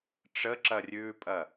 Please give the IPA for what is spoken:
ʈ͡ʂ ə ǁ ɐ rʲ ʉː pʼ ɐ

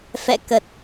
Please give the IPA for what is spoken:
f ɛ̰˧˨ k ə˨˩ t̚

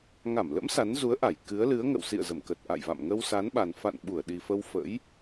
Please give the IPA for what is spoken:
ŋ a˧˩ m l ə̰˧˥ m s a˨˦ n z u˨˦ ə̯ ʔ a˧˩ j k ɨ˨˦ ə̯ l ɨ˨˦ ə̯ ŋ ə̰˧˨ w s ḭ˧˨ ə̯ z ə˧˩ m k ə˨˩ t̚ ʔ a̰˧˨ j v a̰˧˨ m ŋ ə˧ w s a˨˦ n ɓ a˨˩ n f a̰˧˨ n ɓ u˧˩ ə̯ ɗ i˨˩ f ə˧ w f ə̰˧˥ j

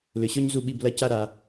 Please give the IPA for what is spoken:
l ʏ˩˧ ɕ ɔ˥ ɲ z u˧˩ ɓ i˧˩ b l ɐ˧˩ c a˥˧ ɾ a˧

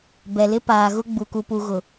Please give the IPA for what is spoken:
b ɛ˨ l ɪ˦ p aː˨ ɣ ʊ˦ ɡ͡b u˨ k u˨ p u˨ ɣ ʊ˨

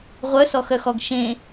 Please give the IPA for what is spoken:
ʁʷ œ s ɔ x œ x ɔ ɡ ʃ ẽ

